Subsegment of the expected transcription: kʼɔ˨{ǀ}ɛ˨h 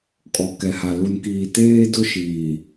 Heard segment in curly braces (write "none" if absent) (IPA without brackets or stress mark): k